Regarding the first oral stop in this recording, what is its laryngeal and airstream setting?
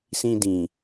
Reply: plain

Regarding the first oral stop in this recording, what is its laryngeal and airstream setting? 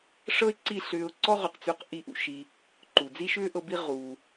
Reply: click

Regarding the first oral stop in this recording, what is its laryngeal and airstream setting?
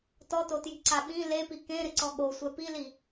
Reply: plain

